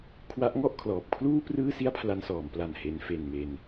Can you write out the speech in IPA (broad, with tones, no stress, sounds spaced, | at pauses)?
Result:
kʰ w a˦˥ ʔ ŋ ɔ˥˩ ʔ kʰ l ɔː˨˩ p̚ kʰ l uː˥˩ p r ɯː˥˩ s i˥˩ a̯ pʰ l a˧ n s ɔː˩˦ m p l a˨˩ n h e˩˦ n f e˨˩ n m e˧ n